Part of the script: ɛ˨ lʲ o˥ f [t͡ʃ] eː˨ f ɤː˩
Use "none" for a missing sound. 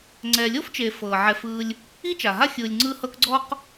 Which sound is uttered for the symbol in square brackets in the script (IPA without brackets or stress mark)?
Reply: t͡ʃ